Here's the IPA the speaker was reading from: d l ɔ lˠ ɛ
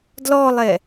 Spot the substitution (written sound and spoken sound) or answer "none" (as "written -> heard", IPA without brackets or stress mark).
none